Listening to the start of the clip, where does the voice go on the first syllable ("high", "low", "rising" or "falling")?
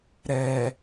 low